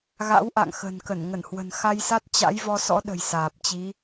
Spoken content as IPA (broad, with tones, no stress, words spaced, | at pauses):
ɣa̰˧˥wʔa̰˧˨ŋxə̤˨˩n kə˧˩n ŋə˧˩nhwə̤˨˩nxa˧jsa˦˥t̚ t͡ɕa̰˧˥jvɔ˧sɔ̰˧˥ɗə̤˨˩j saː˨˩p̚t͡ɕi˨˦